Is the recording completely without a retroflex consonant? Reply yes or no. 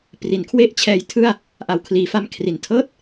yes